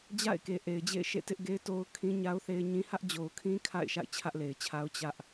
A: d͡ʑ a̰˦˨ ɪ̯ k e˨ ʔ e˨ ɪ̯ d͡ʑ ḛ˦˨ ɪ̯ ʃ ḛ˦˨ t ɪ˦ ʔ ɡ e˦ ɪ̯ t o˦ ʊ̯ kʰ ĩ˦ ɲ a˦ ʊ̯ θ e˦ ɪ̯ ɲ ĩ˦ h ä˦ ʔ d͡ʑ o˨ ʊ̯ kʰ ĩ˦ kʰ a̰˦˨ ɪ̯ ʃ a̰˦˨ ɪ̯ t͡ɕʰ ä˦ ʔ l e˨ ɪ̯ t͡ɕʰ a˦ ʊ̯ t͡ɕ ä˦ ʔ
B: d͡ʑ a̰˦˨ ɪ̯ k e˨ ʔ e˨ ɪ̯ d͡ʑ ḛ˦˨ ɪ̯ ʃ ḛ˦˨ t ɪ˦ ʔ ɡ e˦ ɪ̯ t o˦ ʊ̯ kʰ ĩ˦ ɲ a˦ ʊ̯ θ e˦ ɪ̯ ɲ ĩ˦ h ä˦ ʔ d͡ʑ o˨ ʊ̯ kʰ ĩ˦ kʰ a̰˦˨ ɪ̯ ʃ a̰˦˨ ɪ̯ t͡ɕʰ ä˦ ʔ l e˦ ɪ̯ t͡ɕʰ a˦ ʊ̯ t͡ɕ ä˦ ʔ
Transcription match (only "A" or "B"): A